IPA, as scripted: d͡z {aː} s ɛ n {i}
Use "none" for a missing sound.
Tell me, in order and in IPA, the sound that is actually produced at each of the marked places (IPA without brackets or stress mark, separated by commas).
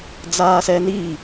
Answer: aː, i